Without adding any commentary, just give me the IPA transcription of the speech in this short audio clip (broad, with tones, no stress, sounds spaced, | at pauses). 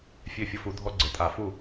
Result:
fʲ ø˥˩ fʲ ʊ˦ f u˨˥ dʱ ɔ˦ ɡ͡ǀ ə˩˧˩ tʼ a˧˩˧ f u˥˩